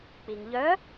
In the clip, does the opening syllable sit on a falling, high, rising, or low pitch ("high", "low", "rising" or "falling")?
low